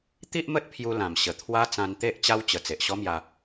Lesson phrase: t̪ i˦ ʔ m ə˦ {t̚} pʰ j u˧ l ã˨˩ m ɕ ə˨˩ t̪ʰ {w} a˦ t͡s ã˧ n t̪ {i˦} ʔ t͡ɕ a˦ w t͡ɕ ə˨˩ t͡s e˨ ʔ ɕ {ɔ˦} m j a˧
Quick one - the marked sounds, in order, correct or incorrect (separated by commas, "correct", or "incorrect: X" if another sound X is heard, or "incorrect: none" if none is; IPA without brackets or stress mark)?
correct, correct, incorrect: e˦, correct